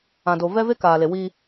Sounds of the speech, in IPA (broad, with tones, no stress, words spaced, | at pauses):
ã˨do˨ vɛ˦ve˦kaː˨le˨ wiː˦